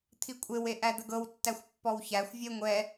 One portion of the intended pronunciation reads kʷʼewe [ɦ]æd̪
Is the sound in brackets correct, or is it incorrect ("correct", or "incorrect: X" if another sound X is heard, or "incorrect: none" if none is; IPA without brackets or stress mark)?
incorrect: ʔ